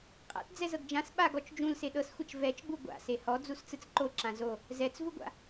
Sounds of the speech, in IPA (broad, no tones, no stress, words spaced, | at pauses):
qʼa̰t d͡zɛzɤɡd͡ʒãs ɓa ɡɔt͡ʃd͡ʒũl seɗɤsxʷɛt͡ʃ vɛt͡ʃɡ͡bu ɡʷa̰ sehɔ d͡zust͡sɯt͡sǃo ǁãzo | zɛt͡svuɡʷa̰